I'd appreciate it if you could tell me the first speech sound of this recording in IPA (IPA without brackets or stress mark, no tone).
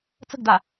t͡s